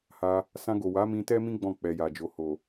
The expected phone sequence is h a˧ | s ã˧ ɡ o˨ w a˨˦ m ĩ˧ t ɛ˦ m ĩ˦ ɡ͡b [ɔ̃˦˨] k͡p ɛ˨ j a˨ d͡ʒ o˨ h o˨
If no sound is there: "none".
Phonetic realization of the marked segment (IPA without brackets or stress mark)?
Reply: ɔ̃˦˨